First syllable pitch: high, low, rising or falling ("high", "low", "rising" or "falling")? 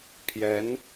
rising